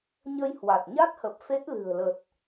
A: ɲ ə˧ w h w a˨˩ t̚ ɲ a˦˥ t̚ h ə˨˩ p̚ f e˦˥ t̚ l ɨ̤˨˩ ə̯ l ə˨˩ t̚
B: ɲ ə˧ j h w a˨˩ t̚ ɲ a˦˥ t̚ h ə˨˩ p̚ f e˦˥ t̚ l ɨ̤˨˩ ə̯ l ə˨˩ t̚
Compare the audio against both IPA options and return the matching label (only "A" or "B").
B